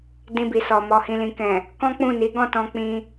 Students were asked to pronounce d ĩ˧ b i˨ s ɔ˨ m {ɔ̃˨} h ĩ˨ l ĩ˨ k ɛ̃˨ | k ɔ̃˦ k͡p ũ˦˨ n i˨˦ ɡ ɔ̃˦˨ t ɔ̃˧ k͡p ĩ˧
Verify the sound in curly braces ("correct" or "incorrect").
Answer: incorrect